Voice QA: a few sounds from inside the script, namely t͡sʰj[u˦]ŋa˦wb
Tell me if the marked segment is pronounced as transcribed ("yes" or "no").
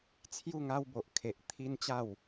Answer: no